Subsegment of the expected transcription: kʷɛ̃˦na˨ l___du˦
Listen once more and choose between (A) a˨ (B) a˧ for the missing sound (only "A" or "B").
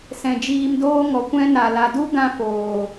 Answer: A